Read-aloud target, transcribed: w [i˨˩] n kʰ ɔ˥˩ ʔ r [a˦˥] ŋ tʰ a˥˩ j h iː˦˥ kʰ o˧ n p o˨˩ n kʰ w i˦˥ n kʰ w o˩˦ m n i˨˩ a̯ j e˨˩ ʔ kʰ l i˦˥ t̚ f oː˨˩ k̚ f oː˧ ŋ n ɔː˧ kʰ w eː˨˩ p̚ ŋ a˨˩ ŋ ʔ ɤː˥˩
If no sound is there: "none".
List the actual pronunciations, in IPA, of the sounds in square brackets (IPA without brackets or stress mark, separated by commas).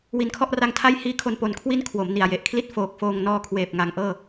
i˧, a˦˥